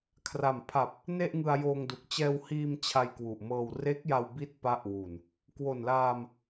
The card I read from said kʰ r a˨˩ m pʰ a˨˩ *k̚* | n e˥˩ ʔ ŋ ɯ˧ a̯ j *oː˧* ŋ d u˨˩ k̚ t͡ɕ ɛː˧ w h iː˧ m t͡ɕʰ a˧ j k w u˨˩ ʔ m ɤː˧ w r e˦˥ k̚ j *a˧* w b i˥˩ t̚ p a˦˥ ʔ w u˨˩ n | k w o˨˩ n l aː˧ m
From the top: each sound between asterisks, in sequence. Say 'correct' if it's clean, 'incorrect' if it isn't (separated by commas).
incorrect, correct, correct